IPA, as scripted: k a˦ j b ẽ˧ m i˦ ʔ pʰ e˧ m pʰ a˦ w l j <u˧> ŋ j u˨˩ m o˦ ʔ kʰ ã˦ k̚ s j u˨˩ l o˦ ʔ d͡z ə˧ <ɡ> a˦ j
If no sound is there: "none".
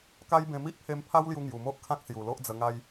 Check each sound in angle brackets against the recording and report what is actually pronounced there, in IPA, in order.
u˧, ŋ

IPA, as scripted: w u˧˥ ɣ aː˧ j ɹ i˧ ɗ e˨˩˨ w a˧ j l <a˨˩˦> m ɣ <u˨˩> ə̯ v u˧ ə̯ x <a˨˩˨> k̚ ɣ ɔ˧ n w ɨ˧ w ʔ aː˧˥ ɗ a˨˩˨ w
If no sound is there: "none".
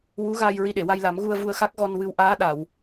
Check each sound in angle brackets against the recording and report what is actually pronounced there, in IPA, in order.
a˨˩˦, u˧, a˦˥

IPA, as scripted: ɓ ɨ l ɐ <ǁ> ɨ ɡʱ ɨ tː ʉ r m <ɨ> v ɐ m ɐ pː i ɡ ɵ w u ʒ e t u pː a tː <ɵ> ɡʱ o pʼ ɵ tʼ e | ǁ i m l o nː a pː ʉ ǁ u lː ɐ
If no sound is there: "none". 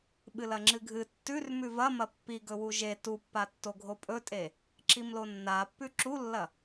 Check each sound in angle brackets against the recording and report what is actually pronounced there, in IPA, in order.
ŋ͡ǁ, ʉ, o

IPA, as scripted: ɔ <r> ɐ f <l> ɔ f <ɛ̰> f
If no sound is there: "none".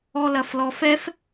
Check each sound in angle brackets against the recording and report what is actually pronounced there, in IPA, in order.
l, l, ɛ

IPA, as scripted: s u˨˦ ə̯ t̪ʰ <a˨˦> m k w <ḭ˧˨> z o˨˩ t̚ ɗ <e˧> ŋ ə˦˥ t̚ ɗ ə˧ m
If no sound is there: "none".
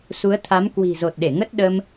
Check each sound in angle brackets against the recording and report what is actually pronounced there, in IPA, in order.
a˨˦, i̤˨˩, e˧˩

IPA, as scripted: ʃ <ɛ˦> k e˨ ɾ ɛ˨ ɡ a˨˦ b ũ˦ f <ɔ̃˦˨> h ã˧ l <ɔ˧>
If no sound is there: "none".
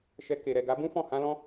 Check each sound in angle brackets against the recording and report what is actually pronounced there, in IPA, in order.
ɛ˧, ɔ̃˦˨, ɔ̃˧

